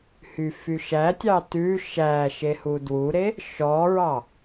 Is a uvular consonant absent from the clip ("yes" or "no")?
yes